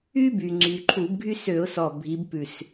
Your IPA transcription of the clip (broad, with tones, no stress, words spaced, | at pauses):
y˥by˩ŋ͡ǀy˩ ǃʰu˧˩˧bɡʱy˥sø˧˩˧ʊ̯ sɔ˧˩bʱi˨˦b pʉ˧˩s